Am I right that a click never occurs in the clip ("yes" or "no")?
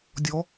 yes